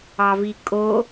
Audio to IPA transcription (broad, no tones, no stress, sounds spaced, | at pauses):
ɑ v i kʼ o